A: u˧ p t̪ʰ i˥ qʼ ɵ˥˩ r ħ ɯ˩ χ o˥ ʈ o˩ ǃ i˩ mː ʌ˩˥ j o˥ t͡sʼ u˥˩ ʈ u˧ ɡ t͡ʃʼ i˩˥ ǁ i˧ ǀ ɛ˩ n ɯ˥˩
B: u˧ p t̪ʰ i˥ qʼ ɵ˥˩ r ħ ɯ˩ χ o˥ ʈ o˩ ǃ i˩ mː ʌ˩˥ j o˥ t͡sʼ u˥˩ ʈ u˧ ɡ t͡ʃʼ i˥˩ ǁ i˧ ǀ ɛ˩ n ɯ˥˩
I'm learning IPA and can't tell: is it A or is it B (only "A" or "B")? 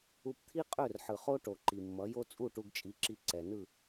A